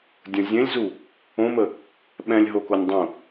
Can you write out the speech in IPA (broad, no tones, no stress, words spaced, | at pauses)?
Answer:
dʲə̃ zʲẽlʲzu | õmə | ɓɛ̃lʲɦokonʲ dˤũ